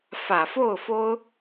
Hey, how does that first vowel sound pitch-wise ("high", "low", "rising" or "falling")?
low